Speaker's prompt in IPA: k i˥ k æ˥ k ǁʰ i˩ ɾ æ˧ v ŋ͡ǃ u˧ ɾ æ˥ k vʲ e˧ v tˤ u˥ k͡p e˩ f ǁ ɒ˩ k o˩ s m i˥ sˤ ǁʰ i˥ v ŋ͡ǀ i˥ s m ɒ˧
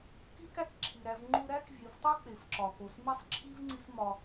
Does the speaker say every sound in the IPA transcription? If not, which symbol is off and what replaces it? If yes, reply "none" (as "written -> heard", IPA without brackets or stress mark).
none